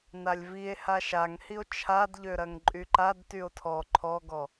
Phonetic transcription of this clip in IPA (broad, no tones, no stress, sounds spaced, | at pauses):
n a lʲ v i e̯ h a ʃ a ŋ h i o̯ t͡ʃʰ a d ʎ ø ɾ ɐ ŋ ǃʼ y ǃ a d t y o̯ tʰ ɔ ǃʰ ɔ ɡ ɔ